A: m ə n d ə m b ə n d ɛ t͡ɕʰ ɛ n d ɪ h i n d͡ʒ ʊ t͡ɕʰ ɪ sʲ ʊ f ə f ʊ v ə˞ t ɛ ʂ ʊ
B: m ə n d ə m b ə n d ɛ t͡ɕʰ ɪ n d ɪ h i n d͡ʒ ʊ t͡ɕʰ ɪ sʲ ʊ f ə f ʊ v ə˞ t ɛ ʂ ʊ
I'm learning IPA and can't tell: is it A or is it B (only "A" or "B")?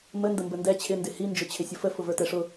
B